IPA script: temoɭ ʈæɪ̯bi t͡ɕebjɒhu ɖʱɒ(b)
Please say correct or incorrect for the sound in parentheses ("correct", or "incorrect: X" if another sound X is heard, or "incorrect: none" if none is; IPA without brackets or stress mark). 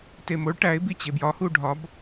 correct